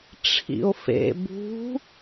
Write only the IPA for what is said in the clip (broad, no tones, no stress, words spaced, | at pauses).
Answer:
ʈ͡ʂʰḭo̯fḛ bṳ